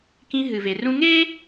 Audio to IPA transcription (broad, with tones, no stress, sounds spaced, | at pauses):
k ĩ˦ ɦ ɨ˨ v e˨ r ũ˦ ŋ e˦